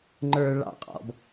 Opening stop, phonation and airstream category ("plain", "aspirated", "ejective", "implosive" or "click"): click